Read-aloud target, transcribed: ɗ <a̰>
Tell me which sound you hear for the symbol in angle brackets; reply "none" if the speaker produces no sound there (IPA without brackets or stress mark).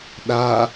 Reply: a